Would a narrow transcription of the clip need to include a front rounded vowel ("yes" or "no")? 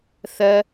no